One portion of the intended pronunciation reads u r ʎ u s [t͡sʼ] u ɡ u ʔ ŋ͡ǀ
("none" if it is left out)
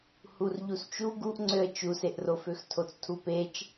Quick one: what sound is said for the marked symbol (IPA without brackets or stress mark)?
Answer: t͡ʃ